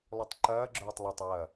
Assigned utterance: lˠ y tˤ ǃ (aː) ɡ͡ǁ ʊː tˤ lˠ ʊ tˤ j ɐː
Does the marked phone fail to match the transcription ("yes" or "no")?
yes